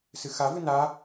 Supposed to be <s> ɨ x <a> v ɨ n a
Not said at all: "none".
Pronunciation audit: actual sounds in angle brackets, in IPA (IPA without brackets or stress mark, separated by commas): s, a